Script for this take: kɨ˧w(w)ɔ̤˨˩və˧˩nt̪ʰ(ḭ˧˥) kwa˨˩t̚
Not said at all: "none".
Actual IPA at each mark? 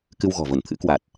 ɣ, ɨ̰˧˥

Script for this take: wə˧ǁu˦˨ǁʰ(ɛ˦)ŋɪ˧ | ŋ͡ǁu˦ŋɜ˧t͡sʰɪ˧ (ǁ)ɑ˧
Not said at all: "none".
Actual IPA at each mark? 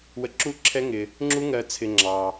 ɛ˦, ŋ͡ǁ

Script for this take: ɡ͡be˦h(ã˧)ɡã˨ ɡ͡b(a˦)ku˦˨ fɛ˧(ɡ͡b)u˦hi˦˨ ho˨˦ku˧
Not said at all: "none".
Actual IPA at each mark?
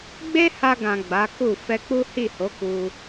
a˧, a˨˦, k͡p

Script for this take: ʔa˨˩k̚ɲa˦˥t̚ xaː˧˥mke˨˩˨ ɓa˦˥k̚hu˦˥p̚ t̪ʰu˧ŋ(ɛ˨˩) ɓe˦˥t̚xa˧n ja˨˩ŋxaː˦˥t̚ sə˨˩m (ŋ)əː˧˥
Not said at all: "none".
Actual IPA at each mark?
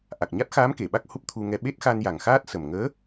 ɛ˧, ŋ

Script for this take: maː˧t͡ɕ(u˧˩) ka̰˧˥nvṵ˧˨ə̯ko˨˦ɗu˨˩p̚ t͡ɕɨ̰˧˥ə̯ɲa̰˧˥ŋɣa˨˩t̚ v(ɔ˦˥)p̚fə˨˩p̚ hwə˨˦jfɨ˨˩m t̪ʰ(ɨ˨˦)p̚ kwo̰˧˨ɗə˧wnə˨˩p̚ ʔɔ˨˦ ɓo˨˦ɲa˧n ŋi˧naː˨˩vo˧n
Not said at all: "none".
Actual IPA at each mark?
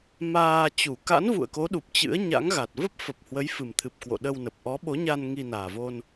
u˧˩, ə˦˥, ɨ˨˩

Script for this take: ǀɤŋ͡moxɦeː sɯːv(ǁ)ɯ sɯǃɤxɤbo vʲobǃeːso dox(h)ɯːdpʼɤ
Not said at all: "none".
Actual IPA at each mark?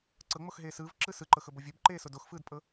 ǁ, f

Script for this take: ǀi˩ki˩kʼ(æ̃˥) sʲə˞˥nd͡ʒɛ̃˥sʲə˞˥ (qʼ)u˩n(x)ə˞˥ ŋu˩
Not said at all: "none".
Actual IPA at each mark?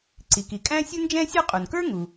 æ̃˥, qʼ, k

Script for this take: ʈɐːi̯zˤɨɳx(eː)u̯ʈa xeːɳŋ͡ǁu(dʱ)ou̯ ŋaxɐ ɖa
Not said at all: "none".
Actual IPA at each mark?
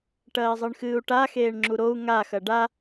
ɨː, ɾ

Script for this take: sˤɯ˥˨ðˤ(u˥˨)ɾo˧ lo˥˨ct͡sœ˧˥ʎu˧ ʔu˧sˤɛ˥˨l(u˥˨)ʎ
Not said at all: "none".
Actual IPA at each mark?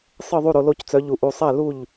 u˥˨, u˥˨

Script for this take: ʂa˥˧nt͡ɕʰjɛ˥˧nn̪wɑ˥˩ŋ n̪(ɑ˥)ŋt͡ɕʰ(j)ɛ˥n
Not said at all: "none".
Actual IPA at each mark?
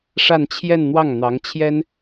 ɑ˧˥, j

